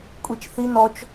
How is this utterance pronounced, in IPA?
kʷʼ i t͡ʃ θ i n ɔ t͡ʃ

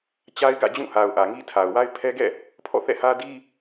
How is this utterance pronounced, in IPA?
t͡ɕ a˦ ɪ̯ ɡ ä̰˦˨ d͡ʑ ũ˦˨ h a˨ ʊ̯ ʔ ä˨ ŋ i˦ tʰ a˨ ʊ̯ w a˦ ɪ̯ pʰ ɛ˦ ɡ ɛ̰˦˨ | pʰ ɔ̰˦˨ θ ɛ̰˦˨ h ä˦ d i˦

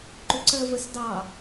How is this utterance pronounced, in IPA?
ǃ ʏ ǀ ɜ v ə s d ɑ

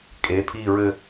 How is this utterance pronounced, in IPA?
kʼ e˩˧˩ pʰ i˥˧ ɹ ɘ˥˧

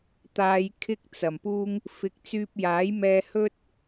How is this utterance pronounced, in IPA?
t̪ aː˧ j kʰ ɪ˥ k̚ t͡s ɐ˨˩ m p uː˥ ŋ | f ɪ˨˥ k̚ t͡s yː˧ p̚ j aː˨˥ j m ɛː˧ h ɵ˥ t̚

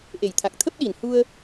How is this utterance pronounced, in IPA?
ʔ e˨˩ j t̪ʰ a˨˩ k̚ t̪ʰ ə˦˥ p̚ ɗ i˨˩ n h u˧ ə̯

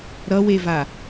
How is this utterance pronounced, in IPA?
ɾ ʌ w e v a

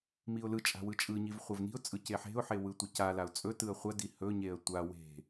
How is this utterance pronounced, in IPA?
m i ʊ̯ l ɯ t͡ʃʼ a̤ w ɯ t͡ʃʼ ɯ ɲ i v χʷ ɐ v n i̤ ʊ̯ t͡sʼ ɯ c e ħ e̤ ʊ̯ ħ e w ɯ tʷ i c a l a ʊ̯ t͡sʼ ɵ t ɯ ə̯ χʷ ɐ d i h ɵ ɲ e ə̯ tʷ a w e̤

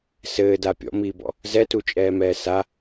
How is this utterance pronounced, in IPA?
s ɘː d a pʲ ɔ̰ m iː b ɔ̰ | z ɛ t u t͡ʃʼ ɛː m ɛː s a

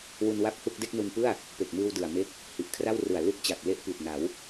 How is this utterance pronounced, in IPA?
w u˧ n w a˥˩ p̚ h u˥˩ k̚ d e˥˩ k̚ n u˧ n p ɯ˥˩ a̯ | p e˨˩ k̚ m ɯː˧ w d ɯ˨˩ a̯ m e˥˩ k̚ | h i˨˩ ʔ kʰ r a˥˩ w r ɯ˨˩ a̯ l u˦˥ k̚ t͡ɕ a˨˩ k̚ l e˦˥ ʔ p i˨˩ t̚ n a˩˦ w

